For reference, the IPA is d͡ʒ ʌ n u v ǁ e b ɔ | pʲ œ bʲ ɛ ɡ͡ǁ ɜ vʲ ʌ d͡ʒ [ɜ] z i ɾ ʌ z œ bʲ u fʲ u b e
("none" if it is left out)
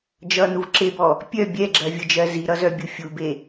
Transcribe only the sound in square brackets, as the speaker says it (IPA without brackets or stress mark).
ɜ